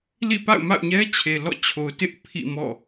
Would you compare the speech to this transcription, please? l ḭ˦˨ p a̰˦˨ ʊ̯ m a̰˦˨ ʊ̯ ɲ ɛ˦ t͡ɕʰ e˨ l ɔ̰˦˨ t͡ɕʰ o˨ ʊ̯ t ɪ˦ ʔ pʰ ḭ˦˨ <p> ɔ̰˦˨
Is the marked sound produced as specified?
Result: no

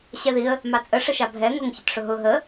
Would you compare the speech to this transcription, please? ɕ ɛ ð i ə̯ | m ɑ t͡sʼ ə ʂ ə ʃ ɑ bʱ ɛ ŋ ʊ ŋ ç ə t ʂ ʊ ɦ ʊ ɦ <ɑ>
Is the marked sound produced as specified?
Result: no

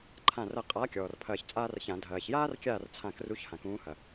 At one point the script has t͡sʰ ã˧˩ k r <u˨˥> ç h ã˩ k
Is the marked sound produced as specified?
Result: yes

